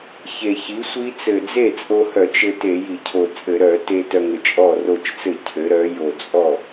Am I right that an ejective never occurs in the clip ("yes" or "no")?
no